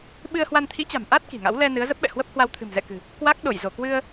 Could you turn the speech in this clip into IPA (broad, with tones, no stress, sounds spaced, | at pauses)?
ɓ ɨ˧ ə̯ h w a˧ n t̪ʰ ḭ˧˥ t͡ɕ a̤˨˩ m ʔ a˦˥ t̚ k i̤˨˩ ŋ a̰˧˥ w l ɛ˧ n ɨ˨˦ ə̯ z ə˦˥ p̚ ɓ ɛ̰˧˨ h w ə˦˥ p̚ h w a˧ w t̪ʰ ɨ̤˨˩ m z ɛ̰˧˨ k ɨ̤˨˩ | k w a˦˥ k̚ ɗ o˧˩ j z o˧˩ k w ɨ˧ ə̯